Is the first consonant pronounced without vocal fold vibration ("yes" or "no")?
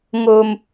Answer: no